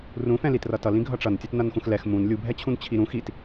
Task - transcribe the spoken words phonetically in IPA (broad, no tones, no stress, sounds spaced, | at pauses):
r ũ f ɛ̃ l i t r ʌ t ʌ l ĩ ɡʱ ʌ ʈ͡ʂ ʌ n tʲ ʌ t n ʌ n x ũ x l ɛ x m ũ n lʲ u bʱ ɛ t͡ɕʰ ũ n t͡ɕʰ i ɾ ũ x i t